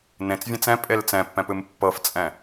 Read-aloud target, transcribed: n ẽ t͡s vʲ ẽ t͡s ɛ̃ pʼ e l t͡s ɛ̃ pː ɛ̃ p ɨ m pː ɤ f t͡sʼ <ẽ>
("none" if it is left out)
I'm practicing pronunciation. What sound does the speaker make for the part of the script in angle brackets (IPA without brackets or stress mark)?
ɛ̃